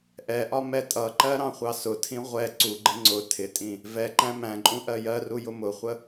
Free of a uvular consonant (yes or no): no